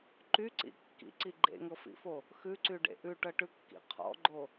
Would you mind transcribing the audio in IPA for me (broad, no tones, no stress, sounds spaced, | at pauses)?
ǃ y ǀ ḭ kː ḭ ǀ i ɡ͡ǃ ḛ ŋ ɤ f ḭ f o | x ʉ ǀ y ɖ ḛ ʔ ʉ ʈ ɤ ʈ ʉ kː ḭ qʰ ɔ̰ ɡ͡ǃ o